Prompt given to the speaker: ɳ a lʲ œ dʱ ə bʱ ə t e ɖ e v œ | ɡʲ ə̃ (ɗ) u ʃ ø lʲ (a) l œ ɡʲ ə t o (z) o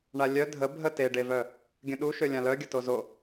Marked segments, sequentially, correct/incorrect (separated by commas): correct, incorrect, correct